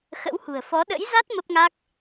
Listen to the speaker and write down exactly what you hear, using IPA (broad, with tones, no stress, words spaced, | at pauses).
xə̰˧˥whṳ˨˩ə̯fɔ˨˦ ɗə̰˧˥jza˦˥t̚ mə˦˥p̚ŋa˦˥k̚